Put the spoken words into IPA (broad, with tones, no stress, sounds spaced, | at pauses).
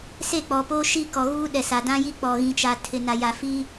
s eː˦˨ k͡p ɔ˨ p oː˦ ʃ i˦ k ɔ˨ ɣ uː˦ ɗ ɛ˨ s a˨ d ã˦ j i˦ k͡p ɔ˨ ɣ ĩ˨ t͡ʃ a˨ tʰ ɪ˨ n a˨ j a˨ f i˦